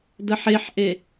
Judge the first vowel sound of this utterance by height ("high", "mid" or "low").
mid